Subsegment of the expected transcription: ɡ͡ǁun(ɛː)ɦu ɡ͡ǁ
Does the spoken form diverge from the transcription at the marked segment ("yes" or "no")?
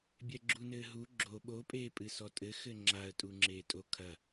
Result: yes